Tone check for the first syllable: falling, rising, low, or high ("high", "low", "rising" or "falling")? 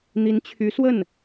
rising